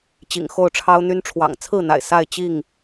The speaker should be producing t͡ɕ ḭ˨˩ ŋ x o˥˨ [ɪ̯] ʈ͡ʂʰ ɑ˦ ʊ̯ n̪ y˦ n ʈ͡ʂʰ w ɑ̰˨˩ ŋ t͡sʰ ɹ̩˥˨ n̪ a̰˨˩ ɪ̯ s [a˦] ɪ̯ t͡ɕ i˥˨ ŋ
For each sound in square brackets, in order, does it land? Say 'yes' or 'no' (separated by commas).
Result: no, no